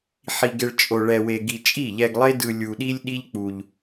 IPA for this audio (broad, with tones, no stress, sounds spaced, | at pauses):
ħ i˧ ɡ e˧ ɭ t͡ʃʼ o˧ ɭ ɛ˧ w e˧ ɡ i˧ t͡ʃʼ i˦˨ ʎ ɛ˧ ɡ lˠ e˦ d ɯ˧ lʲ u˧ ɗ i˦ lʲ ɗ i˦ ʎ k͡p u˧ ʎ